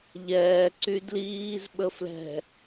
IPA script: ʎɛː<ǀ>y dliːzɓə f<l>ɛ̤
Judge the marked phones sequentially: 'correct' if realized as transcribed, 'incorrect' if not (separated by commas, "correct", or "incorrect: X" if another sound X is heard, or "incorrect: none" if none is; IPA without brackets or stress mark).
correct, correct